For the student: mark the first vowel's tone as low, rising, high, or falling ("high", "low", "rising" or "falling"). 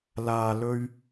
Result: low